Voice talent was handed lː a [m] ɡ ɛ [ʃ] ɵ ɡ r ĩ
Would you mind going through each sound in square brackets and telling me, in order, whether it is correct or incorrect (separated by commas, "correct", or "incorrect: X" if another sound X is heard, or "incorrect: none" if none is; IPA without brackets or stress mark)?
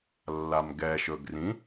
correct, correct